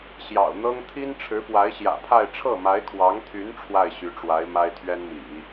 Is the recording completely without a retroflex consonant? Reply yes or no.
no